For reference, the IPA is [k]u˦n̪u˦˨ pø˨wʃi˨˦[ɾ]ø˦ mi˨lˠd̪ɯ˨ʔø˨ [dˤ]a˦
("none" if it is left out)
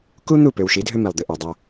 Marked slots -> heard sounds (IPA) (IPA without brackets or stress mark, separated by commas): k, dʱ, dˤ